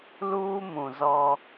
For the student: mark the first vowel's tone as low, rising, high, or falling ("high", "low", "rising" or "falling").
high